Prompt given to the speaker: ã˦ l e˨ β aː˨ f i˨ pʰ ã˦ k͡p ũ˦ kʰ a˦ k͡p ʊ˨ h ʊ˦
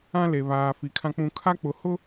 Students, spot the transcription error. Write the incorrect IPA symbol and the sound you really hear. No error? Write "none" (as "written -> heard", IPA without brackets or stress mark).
pʰ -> kʰ